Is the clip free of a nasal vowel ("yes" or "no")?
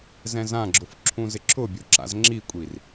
no